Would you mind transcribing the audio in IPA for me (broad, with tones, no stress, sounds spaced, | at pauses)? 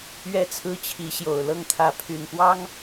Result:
ɥ ɛ˥˨ t͡sʰ ɹ̩˦ t͡ɕʰ i˨˦ ɕ j o˨˩ ʊ̯ l ɤ˥˨ ŋ t̪ʰ ä˨˦ pʰ y˨˩ n p w ɑ˦ ŋ